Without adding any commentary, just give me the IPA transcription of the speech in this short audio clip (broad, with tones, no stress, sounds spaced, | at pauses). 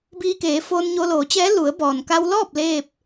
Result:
b iː˧ k eː˩˧ f oː˧ n ɲ o˧ l oː˩˧ t͡ɕ ɛː˧˥ l u˩˧ ə̯ b ɔː˩ n k a˧ w l ɔː˥˨ p̚ l eː˥˨ p̚